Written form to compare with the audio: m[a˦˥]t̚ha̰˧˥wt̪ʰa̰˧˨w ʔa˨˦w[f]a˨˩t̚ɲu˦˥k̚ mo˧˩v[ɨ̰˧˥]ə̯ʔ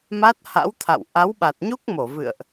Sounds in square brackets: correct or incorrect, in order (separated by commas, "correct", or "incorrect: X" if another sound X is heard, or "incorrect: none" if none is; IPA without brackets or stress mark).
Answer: correct, incorrect: ɓ, incorrect: ɨ̰˧˨